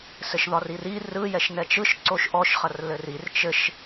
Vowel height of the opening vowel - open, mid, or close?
mid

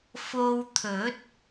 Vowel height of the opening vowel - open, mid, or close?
mid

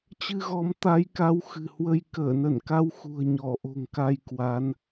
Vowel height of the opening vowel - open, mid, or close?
close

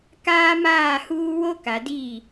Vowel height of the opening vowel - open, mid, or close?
open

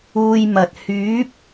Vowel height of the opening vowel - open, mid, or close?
close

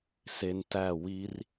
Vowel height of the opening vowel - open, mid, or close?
mid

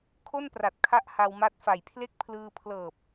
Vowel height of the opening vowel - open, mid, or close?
mid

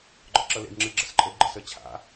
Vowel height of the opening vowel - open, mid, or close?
open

